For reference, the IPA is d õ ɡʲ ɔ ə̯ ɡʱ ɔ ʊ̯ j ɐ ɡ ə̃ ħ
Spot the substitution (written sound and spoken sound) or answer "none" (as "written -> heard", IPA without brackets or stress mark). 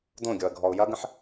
none